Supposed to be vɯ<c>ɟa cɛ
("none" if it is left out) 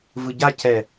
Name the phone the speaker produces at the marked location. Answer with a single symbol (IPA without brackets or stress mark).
none